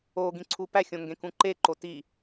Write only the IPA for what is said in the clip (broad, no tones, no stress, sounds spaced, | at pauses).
o ɡ ĩ ǀʰ u p æ xʲ õ ŋ ɡ ẽ k ũ ǃ e ǃ o t i